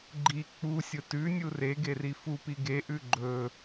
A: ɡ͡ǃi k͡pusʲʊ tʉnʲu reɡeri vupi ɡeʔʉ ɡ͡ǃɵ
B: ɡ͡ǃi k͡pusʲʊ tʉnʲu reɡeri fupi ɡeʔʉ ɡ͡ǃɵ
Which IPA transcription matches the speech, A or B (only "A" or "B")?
B